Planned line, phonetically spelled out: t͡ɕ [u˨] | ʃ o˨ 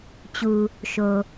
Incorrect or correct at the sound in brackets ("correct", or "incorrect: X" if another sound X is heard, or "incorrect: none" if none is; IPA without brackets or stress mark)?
correct